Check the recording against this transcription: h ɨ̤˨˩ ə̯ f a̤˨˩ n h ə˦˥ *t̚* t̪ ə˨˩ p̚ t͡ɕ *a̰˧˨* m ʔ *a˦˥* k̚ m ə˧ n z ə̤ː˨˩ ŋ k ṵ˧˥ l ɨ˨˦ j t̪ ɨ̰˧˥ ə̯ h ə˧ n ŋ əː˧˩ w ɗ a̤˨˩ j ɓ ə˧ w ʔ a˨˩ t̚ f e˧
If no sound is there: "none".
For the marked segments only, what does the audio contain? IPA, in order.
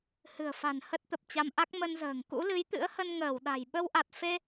t̚, a˧, a˦˥

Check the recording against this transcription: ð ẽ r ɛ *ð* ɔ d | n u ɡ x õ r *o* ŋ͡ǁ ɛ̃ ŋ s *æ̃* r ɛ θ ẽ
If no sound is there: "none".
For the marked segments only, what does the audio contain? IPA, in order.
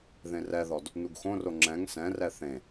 ð, o, ɛ̃

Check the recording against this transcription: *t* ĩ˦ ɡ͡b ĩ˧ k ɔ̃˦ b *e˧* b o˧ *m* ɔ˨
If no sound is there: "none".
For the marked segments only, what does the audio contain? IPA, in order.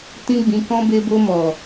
t, e˧, m

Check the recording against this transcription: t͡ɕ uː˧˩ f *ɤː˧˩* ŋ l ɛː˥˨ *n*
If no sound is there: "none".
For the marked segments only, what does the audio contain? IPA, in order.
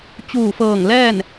ɤː˧˩, n

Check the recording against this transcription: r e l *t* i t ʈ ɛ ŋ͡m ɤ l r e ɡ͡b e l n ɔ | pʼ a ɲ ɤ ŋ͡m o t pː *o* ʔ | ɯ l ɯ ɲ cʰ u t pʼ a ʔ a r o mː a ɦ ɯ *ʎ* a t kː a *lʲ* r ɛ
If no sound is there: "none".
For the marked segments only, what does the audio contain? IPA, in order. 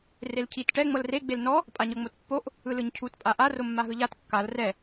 cʰ, o, ʎ, l

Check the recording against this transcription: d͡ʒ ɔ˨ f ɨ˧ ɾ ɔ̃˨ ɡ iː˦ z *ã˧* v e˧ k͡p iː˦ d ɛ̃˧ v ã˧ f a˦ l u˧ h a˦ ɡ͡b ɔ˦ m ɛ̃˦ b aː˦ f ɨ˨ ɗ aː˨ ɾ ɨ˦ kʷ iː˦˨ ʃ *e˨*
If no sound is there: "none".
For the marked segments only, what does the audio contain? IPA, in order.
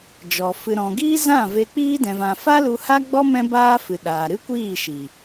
ã˦˨, i˨

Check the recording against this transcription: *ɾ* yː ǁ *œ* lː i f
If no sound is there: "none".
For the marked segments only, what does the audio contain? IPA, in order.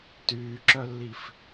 t, œ

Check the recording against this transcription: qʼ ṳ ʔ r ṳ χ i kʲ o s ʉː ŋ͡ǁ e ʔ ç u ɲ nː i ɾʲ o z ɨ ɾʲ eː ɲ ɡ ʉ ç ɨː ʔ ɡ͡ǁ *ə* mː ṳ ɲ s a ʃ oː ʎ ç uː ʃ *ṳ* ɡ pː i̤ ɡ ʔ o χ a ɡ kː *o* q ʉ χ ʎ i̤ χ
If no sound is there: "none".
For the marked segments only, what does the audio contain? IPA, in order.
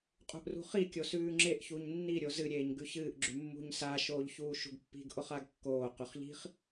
ʉ, ṳ, oː

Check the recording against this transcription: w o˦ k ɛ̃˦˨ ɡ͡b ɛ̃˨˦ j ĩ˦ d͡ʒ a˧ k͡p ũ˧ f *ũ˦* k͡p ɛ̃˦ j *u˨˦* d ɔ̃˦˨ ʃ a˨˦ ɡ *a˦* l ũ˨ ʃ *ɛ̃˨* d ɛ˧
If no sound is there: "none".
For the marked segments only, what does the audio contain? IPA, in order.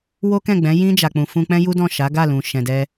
ũ˦, u˦, a˦˨, ɛ̃˨

